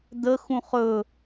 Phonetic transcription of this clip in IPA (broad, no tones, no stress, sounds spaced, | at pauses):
d̪ ə x ũ χ ɵ